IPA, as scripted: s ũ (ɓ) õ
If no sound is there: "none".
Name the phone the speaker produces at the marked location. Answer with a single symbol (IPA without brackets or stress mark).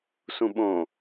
ɓ